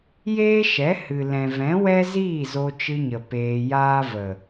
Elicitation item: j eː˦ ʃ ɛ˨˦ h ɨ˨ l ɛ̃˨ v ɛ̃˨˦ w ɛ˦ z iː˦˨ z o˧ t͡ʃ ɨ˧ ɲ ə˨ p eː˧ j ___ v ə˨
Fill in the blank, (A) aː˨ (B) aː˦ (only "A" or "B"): B